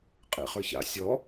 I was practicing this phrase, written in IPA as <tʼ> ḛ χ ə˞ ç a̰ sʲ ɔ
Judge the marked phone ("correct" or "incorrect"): incorrect